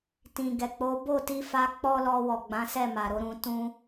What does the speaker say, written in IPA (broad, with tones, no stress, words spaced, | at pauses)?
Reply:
tĩ˨ɡɛ˨k͡po˨˦ bo˦˨ti˧fa˧ k͡pɔ˦lɔ˧wɔ˨ ɡ͡bã˨˦sɛ˦˨ ma˨ɾo˨˦ɾũ˧ tũ˦